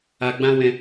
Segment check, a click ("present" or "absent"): absent